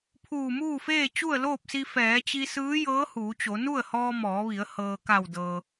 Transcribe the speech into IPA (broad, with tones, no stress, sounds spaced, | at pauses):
pʰ uː˧˩ m uː˥˨ f eː˥˨ t͡ɕ u˥˨ ə̯ l oː˥˨ p̚ s i˧ f ɛː˩˧ t͡ɕ i˧ s ɯː˧˥ j ɤː˧˥ h uː˩˧ t͡ɕ o˩˧ n u˥˨ ə̯ h ɔː˧ m ɔː˩˧ ʋ i˩˧ ə̯ h ɤː˩ k a˧˩ w d ɤː˩